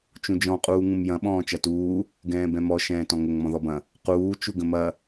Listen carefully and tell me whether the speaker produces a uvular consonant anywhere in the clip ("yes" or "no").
yes